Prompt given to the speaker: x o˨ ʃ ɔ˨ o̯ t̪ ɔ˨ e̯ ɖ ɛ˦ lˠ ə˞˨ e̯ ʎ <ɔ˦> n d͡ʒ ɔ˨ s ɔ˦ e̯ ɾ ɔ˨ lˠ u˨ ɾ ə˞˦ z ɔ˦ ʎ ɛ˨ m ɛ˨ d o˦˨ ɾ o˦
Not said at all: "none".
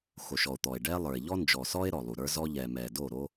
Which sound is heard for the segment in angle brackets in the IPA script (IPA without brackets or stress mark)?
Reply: ɔ˦